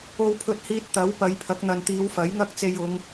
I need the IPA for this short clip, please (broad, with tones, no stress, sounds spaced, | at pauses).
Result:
o˧ w pʰ ɵ˧ t̚ h iː˧ t̚ t̪ ɐ˨˥ w p ɐ˨˧ j pʰ ɐ˨˥ k̚ n̪ ɐ˨ n t̪ iː˨˧ w f ɐ˨˥ j ŋ ɐ˥ k̚ t͡s e˧ j ʊ˨˧ ŋ